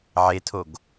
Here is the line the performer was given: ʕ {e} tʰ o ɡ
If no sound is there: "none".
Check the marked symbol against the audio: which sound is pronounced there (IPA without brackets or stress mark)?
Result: e